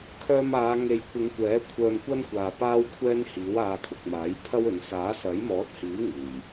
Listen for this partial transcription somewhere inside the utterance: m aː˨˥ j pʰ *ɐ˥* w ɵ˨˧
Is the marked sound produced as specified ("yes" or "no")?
yes